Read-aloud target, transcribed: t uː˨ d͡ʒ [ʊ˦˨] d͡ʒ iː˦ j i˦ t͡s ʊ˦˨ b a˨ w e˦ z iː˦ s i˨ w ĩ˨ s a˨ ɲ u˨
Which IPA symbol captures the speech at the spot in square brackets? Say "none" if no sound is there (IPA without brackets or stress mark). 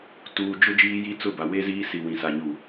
ʊ˦